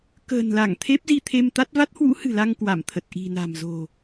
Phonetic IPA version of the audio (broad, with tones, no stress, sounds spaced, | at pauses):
k ə̤ː˨˩ n l a˧˩ ŋ t̪ʰ e˦˥ p̚ z i˧ t̪ʰ e˧ m t̪ a˦˥ t̚ v a˦˥ t̚ h w ṵ˧˥ h ɨ̤˨˩ l a˧ ŋ k w a˧˩ m t̪ʰ ə˨˩ t̚ ʔ i̤˨˩ n a̤˨˩ m z o̤˨˩